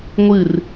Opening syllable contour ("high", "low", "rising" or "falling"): falling